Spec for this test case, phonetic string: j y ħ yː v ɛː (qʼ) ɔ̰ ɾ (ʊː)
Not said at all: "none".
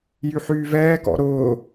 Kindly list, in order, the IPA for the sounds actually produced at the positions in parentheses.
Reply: k, ʊː

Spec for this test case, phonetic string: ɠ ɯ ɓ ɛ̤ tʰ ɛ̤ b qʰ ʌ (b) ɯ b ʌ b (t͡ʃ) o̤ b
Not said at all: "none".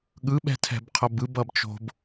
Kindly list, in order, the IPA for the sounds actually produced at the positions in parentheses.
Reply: b, t͡ʃ

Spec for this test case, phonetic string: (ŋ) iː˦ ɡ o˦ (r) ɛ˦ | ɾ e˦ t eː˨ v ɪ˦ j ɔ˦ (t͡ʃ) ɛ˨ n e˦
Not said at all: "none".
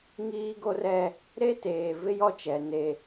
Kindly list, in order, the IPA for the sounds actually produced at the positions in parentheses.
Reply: ŋ, r, t͡ʃ

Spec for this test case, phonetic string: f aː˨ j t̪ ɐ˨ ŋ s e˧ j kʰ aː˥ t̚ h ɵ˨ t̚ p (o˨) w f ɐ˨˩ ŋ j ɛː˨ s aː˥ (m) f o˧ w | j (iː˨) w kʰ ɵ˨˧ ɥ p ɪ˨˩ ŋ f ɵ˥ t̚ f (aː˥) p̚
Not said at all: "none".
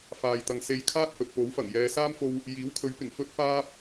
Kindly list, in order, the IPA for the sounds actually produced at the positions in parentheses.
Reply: o˨˥, m, iː˨˥, aː˥

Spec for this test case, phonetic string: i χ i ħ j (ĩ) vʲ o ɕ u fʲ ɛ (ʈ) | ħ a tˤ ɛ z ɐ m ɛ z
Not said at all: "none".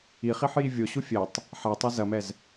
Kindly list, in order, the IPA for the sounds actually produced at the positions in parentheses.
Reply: i, tˤ

